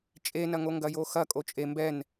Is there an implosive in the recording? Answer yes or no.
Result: no